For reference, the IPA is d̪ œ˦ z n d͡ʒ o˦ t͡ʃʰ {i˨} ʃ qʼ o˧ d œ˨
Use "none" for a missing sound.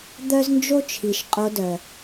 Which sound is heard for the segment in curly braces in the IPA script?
i˨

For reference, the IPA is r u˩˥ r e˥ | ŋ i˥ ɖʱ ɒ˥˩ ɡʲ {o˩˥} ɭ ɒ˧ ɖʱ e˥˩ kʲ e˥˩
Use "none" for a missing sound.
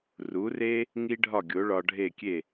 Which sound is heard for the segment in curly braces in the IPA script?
o˩˥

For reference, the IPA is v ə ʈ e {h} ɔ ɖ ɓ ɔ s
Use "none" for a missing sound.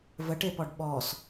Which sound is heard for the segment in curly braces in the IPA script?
p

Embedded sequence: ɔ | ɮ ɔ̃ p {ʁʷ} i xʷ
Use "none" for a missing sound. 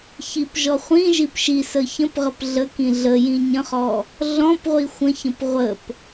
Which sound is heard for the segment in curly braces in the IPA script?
ʁʷ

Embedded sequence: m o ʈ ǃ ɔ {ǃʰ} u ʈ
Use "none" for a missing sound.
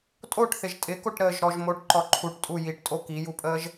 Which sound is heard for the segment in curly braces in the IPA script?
ǃʰ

